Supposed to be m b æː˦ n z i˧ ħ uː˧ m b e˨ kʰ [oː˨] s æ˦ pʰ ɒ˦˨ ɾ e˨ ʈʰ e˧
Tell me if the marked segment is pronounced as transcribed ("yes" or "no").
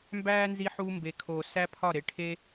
yes